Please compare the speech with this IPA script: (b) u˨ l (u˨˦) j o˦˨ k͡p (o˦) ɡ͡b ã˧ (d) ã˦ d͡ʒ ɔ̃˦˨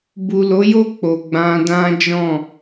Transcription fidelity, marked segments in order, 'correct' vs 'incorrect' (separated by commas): correct, incorrect, incorrect, correct